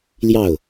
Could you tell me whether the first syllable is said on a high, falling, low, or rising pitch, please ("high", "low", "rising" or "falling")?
falling